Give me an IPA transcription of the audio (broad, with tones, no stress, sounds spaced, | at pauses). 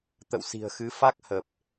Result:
t̪ ə̰˧˨ w s i̤˨˩ ə̯ x ɨ˨˦ f a˦˥ k̚ h ə˨˩ p̚